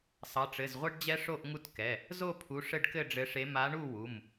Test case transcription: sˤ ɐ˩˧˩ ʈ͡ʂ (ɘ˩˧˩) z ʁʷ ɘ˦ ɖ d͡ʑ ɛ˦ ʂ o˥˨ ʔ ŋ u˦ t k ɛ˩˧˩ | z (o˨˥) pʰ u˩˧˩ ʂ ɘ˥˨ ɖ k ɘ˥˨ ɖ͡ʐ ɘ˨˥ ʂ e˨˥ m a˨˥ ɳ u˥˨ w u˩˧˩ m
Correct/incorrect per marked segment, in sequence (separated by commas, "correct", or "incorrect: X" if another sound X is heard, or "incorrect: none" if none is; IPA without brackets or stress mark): correct, incorrect: o˥˨